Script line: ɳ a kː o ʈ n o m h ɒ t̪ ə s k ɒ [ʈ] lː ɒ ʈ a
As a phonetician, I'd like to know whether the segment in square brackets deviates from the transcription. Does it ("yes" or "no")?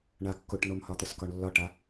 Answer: yes